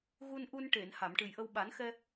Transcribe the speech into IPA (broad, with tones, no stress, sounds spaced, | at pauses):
ɣ u˧ n ʔ u˧ n ʈ e˨˩˨ n h a˨˩˨ m ʈ ɨ˨˩ j ʔ ə˧ w ɓ a˨˩˦ n x ɛ˧